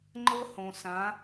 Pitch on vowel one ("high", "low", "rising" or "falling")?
high